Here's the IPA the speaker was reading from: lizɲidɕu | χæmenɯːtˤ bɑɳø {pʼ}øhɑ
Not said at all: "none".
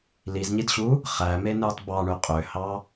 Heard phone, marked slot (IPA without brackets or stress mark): qʼ